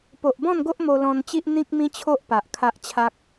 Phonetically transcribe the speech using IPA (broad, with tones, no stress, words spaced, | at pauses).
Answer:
po˨ʔbɔ̃˥˧nɡo˦ʔ mo˧lɔ̃˧nt͡ɕi˦ʔ n̪ĩ˦k̚mĩ˦t͡ɕʰo˦ʔpa˨ʔ kʰa˦ʔt͡ɕʰa˦k̚